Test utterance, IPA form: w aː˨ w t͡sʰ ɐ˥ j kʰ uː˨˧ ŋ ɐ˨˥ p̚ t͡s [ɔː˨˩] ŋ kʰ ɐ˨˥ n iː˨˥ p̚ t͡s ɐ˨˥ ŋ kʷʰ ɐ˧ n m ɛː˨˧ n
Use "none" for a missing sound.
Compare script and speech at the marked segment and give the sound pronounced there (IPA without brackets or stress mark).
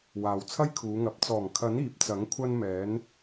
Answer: ɔː˨˩